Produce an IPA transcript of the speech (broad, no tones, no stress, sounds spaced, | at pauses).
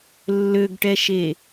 lː ø ɡ ʈ ɛ ʃ e